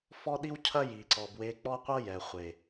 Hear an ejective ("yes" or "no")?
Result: no